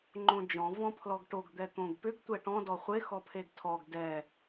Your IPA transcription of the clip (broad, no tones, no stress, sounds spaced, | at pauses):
ŋ͡ǃ õ d͡ʒ ɔ̃ v ɔ̃ pʰ l ɔ ɡ ʈ o ɡ d̪ ɛ t̪ õ ɡ p ʏ ɡ tʷ ɛ ʈ ɔ̃ d ɔ χʷ e x ɔ pʰ e ɡ tʰ ɔ ɡ d ɛ